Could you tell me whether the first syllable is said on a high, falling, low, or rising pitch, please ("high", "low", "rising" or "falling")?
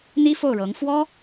high